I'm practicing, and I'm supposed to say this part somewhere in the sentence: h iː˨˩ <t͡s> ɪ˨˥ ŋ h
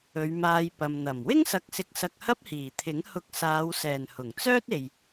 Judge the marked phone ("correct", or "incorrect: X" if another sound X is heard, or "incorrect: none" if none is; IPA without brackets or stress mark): incorrect: t̪ʰ